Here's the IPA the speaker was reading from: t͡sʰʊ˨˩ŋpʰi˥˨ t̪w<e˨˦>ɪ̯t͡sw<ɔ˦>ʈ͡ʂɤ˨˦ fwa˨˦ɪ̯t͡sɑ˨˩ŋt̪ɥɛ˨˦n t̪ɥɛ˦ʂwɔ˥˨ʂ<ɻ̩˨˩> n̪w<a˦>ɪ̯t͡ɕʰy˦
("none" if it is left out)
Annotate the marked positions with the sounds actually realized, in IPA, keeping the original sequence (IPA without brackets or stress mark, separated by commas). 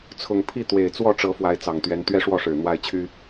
e˨˩, ɔ˥˨, ɻ̩˨˩, a˦